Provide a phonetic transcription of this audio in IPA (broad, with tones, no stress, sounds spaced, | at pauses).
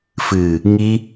f ɨ˨ | ŋ i˧